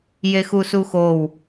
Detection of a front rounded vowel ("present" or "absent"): absent